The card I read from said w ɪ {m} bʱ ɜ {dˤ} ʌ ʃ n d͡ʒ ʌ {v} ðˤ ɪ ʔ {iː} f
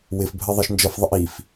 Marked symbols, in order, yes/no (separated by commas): no, no, no, no